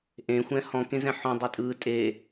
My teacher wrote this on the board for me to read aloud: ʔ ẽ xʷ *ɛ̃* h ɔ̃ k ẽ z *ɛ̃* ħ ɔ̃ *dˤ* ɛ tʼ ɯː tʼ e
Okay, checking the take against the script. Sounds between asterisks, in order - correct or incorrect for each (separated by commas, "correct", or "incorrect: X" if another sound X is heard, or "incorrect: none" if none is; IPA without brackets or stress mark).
correct, correct, correct